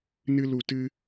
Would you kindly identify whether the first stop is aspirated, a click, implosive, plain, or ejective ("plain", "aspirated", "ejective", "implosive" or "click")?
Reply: plain